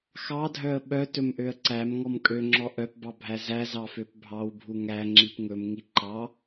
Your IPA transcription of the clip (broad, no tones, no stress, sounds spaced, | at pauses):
x ɑ dʱ œ ə̯ ɓ œ t ɵ m ʔ ø ə̯ ǀ æ m ŋ ɔ m kʼ ø ŋ͡ǁ ɔ ʔ œ p b ɑ bʱ æ z æ z ɑ f ø p bʱ ɑ w bʱ u ŋ æ ŋ͡ǁ i p ŋ ɵ m ŋ i ǃ ɑ